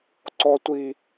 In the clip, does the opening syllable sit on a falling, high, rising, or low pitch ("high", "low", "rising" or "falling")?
high